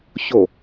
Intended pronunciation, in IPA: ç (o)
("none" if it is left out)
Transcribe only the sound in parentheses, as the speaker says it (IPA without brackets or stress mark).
o